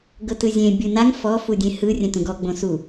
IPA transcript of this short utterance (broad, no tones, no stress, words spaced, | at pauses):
ɡɤtɯzʲẽ bʲɯnaŋ fɔ fudʲẽhɯ rʲɛ̃tũɡɔ ɡ͡bõsu